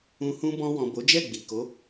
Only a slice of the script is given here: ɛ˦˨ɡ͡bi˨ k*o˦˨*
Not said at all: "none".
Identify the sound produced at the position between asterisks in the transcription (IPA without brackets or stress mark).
o˨˦